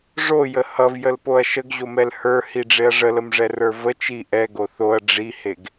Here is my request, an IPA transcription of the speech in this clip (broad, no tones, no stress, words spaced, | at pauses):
ʐojə hʌvjəlpoɐ̯ ʃəɡʑomɛl hə˞hiɖ͡ʐeɐ̯ ʐələmʐɛrə˞ və t͡ʃi ʔɛɡo θoɐ̯ ɖ͡ʐiheɡ